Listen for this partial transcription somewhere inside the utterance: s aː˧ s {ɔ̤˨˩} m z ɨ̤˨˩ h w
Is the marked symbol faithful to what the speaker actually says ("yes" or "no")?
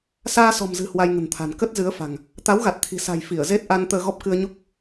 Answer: yes